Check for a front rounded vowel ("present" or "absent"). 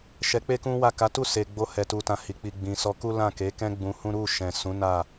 absent